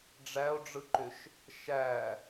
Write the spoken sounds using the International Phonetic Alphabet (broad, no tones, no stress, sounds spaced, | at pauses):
ɖ͡ʐ æ o̯ ɖ͡ʐ ɯ ǃ ʏ ʃ | ʃ æ